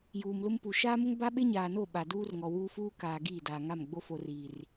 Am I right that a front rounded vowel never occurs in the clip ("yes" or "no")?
yes